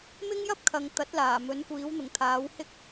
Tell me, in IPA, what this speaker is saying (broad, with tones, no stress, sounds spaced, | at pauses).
m ɪ˥ ŋ j ɐ˥ p̚ kʰ ɐ˨ ŋ t̪ ɐ˨˥ t̚ l aː˨˩ m ɵ˨˥ n kʷ iː˨˥ w n̪ ʊ˨˩ ŋ t̪ʰ aː˨˥ w h ɪ˥ k̚